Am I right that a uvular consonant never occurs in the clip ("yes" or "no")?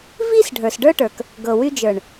yes